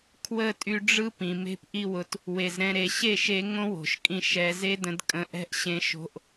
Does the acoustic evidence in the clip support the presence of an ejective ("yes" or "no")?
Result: yes